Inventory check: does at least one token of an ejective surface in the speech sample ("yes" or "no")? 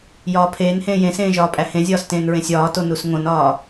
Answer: yes